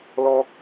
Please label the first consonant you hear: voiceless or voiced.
voiced